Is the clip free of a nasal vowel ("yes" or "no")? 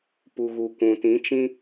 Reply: no